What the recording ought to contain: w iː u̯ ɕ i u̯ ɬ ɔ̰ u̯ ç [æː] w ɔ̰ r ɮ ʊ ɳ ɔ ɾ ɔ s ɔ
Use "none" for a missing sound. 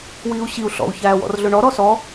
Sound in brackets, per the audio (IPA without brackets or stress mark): æː